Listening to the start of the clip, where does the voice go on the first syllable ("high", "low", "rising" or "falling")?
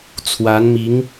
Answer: rising